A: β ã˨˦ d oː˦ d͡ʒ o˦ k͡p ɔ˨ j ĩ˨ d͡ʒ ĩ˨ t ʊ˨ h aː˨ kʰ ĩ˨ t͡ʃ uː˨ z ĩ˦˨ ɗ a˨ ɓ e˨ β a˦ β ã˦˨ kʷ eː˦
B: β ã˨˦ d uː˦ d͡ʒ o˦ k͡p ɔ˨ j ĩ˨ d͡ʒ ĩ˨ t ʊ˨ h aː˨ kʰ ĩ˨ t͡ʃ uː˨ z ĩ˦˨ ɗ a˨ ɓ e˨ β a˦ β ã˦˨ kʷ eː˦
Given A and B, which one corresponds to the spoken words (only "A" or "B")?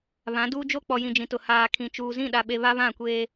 B